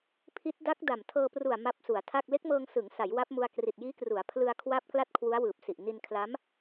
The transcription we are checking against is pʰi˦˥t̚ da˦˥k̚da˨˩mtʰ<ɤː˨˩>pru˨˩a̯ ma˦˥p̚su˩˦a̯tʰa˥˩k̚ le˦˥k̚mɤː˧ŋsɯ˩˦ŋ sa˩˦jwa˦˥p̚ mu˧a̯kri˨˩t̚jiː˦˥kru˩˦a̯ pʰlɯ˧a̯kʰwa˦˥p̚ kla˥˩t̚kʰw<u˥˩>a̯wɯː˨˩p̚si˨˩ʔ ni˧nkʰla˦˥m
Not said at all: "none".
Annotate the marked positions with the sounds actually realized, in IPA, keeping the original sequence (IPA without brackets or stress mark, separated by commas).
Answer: ɤː˧, u˦˥